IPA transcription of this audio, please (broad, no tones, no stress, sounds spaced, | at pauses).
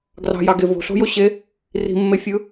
ɡ r ɑ̤ j ɑ ɡ e v o̤ ɬ o̤ j o ɕ e | r i̤ mː e fʲ ɯ